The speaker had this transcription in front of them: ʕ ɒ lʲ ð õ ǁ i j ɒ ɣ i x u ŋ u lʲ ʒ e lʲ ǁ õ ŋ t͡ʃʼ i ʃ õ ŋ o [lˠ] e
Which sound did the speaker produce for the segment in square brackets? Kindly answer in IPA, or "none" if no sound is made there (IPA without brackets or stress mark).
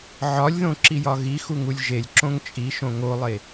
lˠ